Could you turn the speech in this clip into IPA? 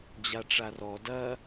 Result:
d͡ʑ a ʈ͡ʂ a r ɔ d ɐ

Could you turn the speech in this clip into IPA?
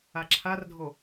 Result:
a ǁʰ a r dʱ o

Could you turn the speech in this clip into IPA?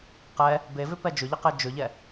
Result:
q ɛ | b e v ʏ p ɛ d͡ʒ ʏ ʎ ə q e d͡ʒ ʏ ʎ ɛ

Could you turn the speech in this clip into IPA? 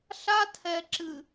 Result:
ɬ a˦ tʰ ɛ˨ ǁ ɨ˨

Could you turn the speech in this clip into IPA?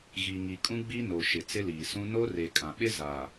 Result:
ɣ i˨ ŋ i˨ kʼ ũ˦ ɡ͡b i˦ n o˨ ʃ ɪ˨ t͡s ɪ˦ l iː˨ s ũ˦ n o˦ r e˨ kʼ ã˨ ɓ ɪ˦ z a˨

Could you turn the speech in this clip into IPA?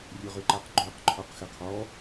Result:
rʲ ø ʁ ʏ ǃ a q ɡ͡ǃ ø q ǃʰ ɔ q x ɪ qʰ ɔ

